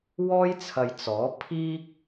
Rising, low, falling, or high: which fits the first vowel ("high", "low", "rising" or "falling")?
high